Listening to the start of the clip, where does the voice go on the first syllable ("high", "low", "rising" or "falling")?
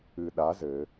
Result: low